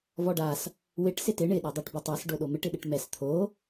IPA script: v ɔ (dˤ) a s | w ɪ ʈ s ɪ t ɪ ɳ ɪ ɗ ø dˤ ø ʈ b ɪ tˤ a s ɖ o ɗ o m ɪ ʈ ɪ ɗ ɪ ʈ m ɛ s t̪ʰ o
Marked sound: incorrect: ɖ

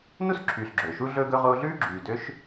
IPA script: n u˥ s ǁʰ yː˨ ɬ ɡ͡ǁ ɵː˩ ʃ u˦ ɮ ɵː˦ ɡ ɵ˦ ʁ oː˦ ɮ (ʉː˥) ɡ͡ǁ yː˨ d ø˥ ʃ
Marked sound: correct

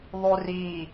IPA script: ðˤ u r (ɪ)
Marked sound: incorrect: i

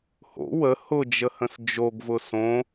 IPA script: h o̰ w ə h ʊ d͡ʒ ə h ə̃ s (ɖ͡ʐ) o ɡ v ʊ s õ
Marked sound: incorrect: d͡ʒ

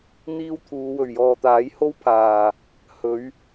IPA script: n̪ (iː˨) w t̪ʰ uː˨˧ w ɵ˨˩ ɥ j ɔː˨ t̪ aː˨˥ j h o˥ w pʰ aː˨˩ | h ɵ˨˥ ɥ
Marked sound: incorrect: iː˥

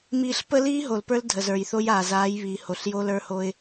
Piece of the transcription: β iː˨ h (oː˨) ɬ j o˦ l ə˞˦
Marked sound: incorrect: o˨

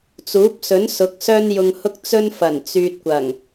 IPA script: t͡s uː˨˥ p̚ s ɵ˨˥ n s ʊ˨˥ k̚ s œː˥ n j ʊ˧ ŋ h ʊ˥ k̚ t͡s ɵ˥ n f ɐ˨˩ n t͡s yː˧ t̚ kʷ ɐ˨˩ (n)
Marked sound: incorrect: ŋ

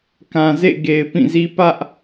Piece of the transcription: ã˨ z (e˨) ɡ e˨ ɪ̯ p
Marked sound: incorrect: ḛ˦˨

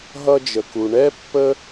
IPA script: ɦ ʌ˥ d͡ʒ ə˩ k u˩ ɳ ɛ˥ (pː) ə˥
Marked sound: correct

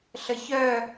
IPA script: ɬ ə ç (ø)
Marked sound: incorrect: œ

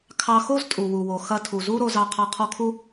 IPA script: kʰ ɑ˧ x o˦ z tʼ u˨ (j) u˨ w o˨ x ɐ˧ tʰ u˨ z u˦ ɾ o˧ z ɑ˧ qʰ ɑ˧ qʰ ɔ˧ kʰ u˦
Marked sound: incorrect: w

